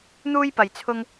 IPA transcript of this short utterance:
n̪uː˥jpɐ˨j t͡sʰʊ˧ŋ

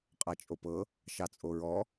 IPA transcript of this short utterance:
qʼɑt͡ʃʼopɤ | ʃɑt͡sʼoɹɔ

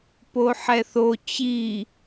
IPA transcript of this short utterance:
poħɛθo t͡ɕi

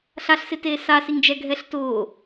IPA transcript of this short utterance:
ɬaɬsɪteː sasiŋd͡ʒɛɡʱɛɬ tʊː

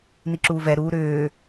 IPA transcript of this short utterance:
niǁuːvɛ ɾuːɾʏː

